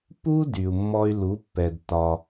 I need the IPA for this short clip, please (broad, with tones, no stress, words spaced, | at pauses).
pu˦ dy˨u̯mːɔ˦y̯ lu˨˦pːɛ˨d tɒ˧